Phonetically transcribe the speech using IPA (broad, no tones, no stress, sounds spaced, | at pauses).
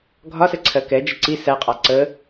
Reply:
ɡʱ ɒ s ɛ ǀʰ ɜ k ɛ d͡ʒ ə ǀ i s æ qʼ ɑ ǀ ə